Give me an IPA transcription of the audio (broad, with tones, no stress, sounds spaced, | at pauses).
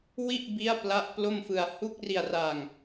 w i˥˩ ʔ b i˦˥ a̯ p l a˦˥ ʔ p l o˥˩ m f ɯ˧ a̯ h u˦˥ k̚ r i˧ a̯ r a˧ ŋ